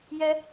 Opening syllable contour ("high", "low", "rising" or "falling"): high